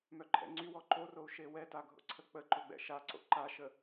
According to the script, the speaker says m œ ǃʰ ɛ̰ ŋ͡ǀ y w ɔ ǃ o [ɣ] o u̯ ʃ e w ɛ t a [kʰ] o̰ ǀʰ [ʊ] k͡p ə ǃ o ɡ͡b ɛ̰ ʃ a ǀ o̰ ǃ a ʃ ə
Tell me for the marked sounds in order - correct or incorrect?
incorrect: r, incorrect: ɡʱ, incorrect: ə

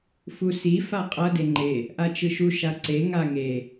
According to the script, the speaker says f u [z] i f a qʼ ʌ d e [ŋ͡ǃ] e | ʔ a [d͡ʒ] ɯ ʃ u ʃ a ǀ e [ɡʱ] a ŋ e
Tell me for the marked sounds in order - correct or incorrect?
incorrect: s, correct, incorrect: t͡ʃ, incorrect: ŋ

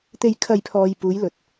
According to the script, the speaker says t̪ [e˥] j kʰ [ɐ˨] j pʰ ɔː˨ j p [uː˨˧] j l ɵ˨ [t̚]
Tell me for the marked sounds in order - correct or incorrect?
incorrect: e˨, correct, correct, correct

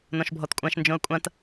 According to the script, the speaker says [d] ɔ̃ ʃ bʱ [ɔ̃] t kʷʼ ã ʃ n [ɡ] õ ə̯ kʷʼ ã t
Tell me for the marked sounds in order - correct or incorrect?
incorrect: n, incorrect: ɔ, incorrect: d͡ʒ

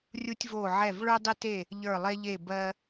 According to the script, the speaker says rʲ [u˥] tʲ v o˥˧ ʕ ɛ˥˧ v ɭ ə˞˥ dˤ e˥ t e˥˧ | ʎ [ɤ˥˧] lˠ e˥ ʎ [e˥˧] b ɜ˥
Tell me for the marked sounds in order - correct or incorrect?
correct, incorrect: ə˞˥˧, correct

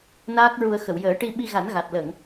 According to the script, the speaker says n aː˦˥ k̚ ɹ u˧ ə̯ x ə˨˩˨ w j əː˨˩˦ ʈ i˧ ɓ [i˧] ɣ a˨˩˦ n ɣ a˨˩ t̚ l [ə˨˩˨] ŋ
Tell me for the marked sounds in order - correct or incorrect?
correct, correct

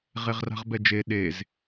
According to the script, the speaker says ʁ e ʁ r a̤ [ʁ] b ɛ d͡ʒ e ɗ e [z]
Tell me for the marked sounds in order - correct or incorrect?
correct, correct

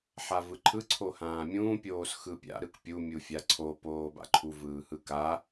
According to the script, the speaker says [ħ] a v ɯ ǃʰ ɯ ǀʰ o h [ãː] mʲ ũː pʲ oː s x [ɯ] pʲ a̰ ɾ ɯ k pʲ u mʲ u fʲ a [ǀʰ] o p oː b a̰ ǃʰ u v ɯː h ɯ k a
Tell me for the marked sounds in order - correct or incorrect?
correct, correct, correct, correct

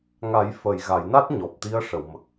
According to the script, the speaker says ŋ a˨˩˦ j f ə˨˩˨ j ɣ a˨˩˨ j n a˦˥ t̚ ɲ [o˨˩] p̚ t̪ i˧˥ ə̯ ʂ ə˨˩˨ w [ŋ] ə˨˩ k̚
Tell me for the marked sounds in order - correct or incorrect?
incorrect: ɔ˨˩, incorrect: m

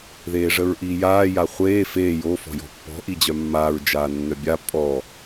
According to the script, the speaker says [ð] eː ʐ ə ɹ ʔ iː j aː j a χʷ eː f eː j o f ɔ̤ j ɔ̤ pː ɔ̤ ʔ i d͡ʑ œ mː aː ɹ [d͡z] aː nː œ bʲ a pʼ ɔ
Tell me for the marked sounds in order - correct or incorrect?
correct, incorrect: d͡ʒ

